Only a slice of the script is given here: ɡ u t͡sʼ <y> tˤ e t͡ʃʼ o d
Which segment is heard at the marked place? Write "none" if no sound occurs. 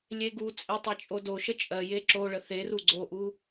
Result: e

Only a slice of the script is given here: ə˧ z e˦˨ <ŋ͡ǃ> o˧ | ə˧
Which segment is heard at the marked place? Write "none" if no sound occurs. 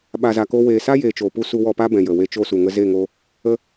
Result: ŋ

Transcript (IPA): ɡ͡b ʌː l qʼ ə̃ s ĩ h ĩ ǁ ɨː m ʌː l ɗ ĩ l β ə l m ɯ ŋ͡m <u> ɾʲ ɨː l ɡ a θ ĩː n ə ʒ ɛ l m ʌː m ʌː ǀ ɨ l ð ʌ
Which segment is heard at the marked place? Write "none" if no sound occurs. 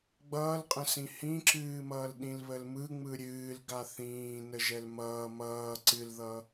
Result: ɯ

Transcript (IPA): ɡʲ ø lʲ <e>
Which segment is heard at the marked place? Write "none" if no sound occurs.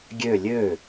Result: ø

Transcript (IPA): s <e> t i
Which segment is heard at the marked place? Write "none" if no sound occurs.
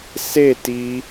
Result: e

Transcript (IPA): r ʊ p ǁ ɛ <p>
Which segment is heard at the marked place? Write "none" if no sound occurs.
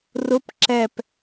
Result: p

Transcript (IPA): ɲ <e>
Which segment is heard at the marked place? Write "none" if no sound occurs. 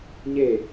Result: e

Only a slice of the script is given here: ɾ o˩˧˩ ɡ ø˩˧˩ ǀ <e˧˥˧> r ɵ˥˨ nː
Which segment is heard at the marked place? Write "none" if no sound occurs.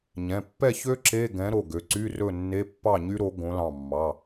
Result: y˧˥˧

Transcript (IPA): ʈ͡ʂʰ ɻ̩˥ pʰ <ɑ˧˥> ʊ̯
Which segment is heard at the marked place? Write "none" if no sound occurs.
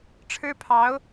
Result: ɑ˧˥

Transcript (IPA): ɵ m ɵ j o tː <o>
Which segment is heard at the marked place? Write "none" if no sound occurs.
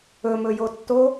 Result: o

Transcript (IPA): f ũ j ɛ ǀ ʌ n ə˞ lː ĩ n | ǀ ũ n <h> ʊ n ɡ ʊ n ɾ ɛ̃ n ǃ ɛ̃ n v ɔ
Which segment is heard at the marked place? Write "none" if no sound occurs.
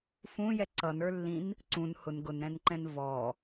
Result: h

